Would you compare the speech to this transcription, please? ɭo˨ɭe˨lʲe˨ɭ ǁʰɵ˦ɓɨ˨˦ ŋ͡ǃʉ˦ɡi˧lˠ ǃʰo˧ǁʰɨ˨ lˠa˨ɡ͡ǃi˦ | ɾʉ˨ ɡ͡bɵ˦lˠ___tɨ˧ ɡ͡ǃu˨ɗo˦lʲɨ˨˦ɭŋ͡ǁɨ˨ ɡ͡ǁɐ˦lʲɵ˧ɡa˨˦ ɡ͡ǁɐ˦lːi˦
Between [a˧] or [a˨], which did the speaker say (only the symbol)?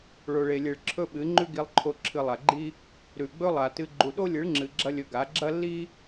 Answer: a˨